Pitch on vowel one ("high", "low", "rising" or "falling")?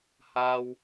high